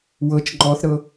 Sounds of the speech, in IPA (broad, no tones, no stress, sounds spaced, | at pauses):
w ɤ t͡ʃ ŋ͡ǃ ɔ θ ɾ ɤ